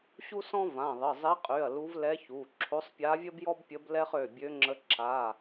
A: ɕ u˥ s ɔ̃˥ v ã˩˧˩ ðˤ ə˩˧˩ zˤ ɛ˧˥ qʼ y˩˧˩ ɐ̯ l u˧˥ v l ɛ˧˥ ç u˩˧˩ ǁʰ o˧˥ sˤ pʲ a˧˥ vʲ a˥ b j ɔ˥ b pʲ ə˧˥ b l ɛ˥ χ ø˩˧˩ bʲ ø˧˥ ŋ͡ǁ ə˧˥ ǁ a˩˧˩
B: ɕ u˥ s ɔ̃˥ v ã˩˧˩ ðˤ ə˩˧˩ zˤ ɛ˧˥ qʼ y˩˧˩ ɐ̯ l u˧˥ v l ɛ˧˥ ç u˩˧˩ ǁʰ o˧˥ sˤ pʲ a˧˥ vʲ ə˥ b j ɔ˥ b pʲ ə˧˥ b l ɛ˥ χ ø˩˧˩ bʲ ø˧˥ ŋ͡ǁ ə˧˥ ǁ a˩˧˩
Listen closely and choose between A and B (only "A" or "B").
B